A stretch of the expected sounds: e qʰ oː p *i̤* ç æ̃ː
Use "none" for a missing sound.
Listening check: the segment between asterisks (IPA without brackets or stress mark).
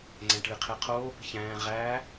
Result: i̤